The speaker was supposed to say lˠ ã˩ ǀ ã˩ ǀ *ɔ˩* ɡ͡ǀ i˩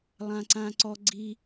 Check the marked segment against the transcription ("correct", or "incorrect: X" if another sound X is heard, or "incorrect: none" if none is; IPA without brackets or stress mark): correct